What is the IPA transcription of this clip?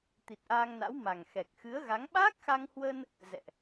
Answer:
t̪i˨˩t̚ʔaː˧ŋna̰˧˥w ma˨˩ŋ xɛ˨˩k̚ xɨ˨˦ə̯ɣa˨˦ŋ ɓaː˦˥k̚xa˧ŋhwə˧n | zɛ̰˧˨ʔ

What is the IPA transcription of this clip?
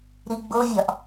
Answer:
ɾiɡ͡bovʲɒʔ

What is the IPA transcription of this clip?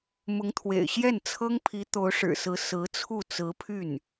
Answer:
mʊ˧˥ŋt̪ʰwḛ˨˩ɪ̯ ɕjɛ˥˩nt͡sʰɤ˥ŋpʰi˧˥ t̪o˧˥ʊ̯ʂɻ̩˨˩sɹ̩˧˥ sɹ̩˧˥t͡sʰu˥˩ t͡sɹ̩˧˥pʰy˥˩n

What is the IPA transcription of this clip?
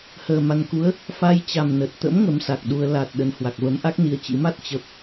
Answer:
həː˨˩ma˨˩nku˨˦ə̯ | fa˧jt͡ɕa˨˩m nə˨˩t̚t̪ə̰˧˥m ŋə˨˦msa˨˩k̚ɗu˧ə̯ la˨˩t̚ ɗə˨˩nhwa˨˩k̚və˨˦mʔa˦˥k̚ ni˧ə̯t͡ɕḭ˧˥ ma˦˥t̚ t͡ɕə˦˥p̚

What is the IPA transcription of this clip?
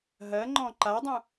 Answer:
ɦɜŋ͡ǃɔ̃ ǃadˤũ

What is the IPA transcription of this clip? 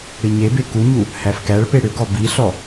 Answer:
ɽiɲebe kuɲu | hæfkæɭpe ɽʏɡɔ biɬɔ

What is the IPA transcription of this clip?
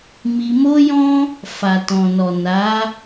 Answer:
mi˧ mo˦jɔ̃˦ | fa˨tɔ̃˨nɔ˨ na˨˦

